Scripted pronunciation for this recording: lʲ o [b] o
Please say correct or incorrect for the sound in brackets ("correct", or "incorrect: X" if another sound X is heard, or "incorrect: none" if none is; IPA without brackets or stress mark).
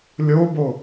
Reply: correct